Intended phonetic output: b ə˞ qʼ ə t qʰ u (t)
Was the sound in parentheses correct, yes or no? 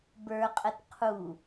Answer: no